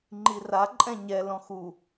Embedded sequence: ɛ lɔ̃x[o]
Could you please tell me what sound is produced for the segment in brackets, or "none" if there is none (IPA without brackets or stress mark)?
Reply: u